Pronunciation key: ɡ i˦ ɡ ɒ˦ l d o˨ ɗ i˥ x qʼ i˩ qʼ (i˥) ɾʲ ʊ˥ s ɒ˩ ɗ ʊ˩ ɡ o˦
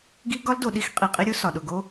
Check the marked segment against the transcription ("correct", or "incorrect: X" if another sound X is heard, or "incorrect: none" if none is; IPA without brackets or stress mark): incorrect: i˦